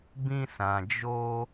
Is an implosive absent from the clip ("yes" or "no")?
yes